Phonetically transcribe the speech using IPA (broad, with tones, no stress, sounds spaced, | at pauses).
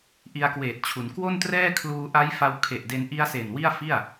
ʔ i˧ a̯ k w eː˨˩ t̚ t͡ɕʰ u˩˦ n k w o˥˩ n t r ɛː˥˩ kʰ l uː˧ ʔ a˦˥ j f a˧ w kʰ e˨˩ ʔ d e˧ n ʔ i˦˥ a̯ s e˨˩ n w i˥˩ a̯ f i˥˩ a̯